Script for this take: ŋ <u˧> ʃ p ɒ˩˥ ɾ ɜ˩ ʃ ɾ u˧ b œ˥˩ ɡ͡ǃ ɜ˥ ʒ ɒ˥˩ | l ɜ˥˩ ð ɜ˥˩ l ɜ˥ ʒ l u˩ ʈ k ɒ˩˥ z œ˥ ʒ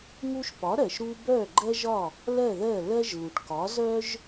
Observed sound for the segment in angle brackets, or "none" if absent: u˥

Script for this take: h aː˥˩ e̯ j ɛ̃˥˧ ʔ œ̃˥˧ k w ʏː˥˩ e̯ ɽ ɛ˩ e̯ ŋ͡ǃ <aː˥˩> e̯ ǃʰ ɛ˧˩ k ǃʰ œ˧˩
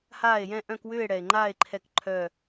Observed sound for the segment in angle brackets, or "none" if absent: aː˥˩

